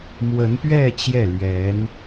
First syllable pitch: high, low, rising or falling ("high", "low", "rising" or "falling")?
rising